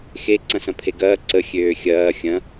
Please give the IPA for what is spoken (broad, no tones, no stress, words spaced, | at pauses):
xe ǀɐ̃sɐ̃pʰeɡɐː ǀə xʲøːxʲɐː xʲɐ̃